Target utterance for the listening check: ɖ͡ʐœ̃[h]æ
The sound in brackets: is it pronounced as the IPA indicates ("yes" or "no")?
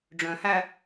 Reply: yes